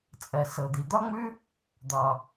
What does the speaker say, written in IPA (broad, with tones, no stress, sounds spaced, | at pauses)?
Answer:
t͡sʼ ɜ˩ s ɤ˩ d̪ i˩ d̪ ɒ˥ ŋ͡m ʉ˥ | d̪ ɒ˩